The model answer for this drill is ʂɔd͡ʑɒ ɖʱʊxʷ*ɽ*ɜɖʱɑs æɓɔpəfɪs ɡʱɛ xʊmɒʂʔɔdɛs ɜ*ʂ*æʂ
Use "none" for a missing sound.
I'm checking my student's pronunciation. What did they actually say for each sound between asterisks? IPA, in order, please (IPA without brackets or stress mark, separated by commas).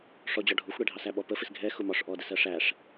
ɽ, ʂ